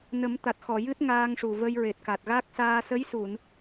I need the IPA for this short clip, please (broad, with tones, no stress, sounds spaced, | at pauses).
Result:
n ə˨˩˦ m t̪ a˨˩ t̚ x ɔ˨˩˨ j ɨ˦˥ t̚ ŋ aː˧ ŋ ʂ u˨˩ v ə˧ j ɹ e˨˩ t̚ k a˨˩ t̚ ɣ a˦˥ k̚ s aː˧ s ə˧˥ j s u˨˩˨ n